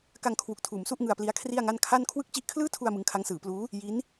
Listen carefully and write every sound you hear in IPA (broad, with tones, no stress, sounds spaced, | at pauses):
k a˧ ŋ kʰ w u˨˩ k̚ tʰ uː˩˦ m s u˥˩ ʔ ŋ ɯ˧ a̯ p l i˦˥ a̯ kʰ r i˥˩ a̯ ŋ a˥˩ n kʰ a˥˩ n kʰ w ɯ˥˩ k̚ t͡ɕ i˥˩ ʔ kʰ l ɯː˥˩ tʰ u˧ a̯ m ɯ˦˥ ŋ kʰ a˦˥ ŋ s ɯː˩˦ p l uː˦˥ | j i˦˥ n